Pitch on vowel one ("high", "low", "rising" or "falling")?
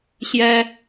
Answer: high